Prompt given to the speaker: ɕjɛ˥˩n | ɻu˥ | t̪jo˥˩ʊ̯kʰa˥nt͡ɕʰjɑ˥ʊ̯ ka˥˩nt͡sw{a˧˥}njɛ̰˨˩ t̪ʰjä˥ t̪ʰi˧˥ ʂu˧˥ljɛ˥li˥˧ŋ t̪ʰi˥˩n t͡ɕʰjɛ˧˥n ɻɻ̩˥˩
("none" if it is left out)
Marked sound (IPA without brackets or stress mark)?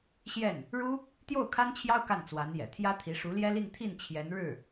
a˧˥